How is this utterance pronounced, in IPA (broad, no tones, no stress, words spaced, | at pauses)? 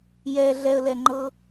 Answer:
jɛ ɮɛə̯lɛŋ͡ǃɤ